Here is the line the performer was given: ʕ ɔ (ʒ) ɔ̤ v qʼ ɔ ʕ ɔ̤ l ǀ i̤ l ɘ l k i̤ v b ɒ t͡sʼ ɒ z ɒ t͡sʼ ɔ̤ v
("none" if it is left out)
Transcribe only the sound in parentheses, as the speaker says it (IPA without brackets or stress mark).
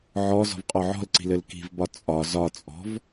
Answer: z